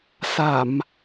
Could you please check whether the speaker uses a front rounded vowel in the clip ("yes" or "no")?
no